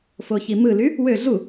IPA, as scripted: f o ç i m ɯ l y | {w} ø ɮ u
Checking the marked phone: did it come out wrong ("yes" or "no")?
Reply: no